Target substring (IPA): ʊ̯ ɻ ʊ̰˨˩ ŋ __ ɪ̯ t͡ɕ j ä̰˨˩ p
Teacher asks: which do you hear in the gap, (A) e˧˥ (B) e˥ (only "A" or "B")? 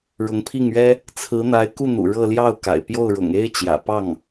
B